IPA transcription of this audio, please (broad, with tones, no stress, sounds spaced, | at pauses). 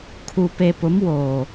kʰ u˨ p e˨ p ʊ˨˦ m w oː˨